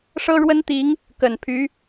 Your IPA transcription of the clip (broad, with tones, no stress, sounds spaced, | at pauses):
ʂ ɤ˥ ɻ w ə˥ n t̪ i˧˥ ŋ | k ə˨˩ n pʰ y˧˥